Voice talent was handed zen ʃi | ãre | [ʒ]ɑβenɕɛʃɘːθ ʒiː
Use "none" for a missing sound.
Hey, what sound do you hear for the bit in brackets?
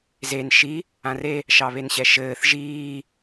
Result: ʃ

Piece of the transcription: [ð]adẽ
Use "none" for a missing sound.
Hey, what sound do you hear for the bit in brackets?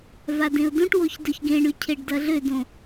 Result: v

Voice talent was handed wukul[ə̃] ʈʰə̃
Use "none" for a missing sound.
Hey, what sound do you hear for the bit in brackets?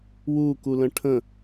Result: ə̃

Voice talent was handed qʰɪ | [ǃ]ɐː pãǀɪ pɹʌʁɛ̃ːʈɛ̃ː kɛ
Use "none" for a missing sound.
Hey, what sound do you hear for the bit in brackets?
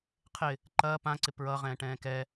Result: ǃ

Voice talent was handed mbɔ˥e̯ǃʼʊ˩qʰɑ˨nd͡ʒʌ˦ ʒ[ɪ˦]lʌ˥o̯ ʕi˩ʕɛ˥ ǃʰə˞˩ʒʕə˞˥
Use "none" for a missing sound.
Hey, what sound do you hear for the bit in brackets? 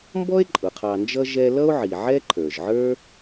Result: ɛ˦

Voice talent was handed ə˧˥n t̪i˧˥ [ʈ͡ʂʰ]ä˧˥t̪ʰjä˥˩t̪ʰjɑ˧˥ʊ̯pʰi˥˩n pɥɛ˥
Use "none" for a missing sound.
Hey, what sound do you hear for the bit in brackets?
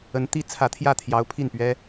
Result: t͡sʰ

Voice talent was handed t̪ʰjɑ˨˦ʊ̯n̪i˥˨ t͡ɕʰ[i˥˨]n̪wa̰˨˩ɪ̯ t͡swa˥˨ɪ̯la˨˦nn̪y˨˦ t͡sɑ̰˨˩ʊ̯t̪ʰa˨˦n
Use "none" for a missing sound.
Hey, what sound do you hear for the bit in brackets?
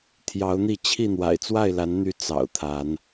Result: i˥˨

